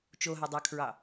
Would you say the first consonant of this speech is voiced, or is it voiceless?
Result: voiceless